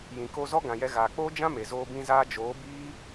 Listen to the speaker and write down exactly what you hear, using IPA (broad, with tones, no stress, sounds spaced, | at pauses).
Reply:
j ĩ˨ k o˧ z ɔ˦ ɡ ã˨ j ɛ˧ ɣ aː˨ k͡p oː˦ d͡ʒ ã˦ m e˨ z oː˧ b ĩ˧ z aː˧ d͡ʒ oː˨˦ b iː˦